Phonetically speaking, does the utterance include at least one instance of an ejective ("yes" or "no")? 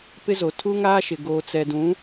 no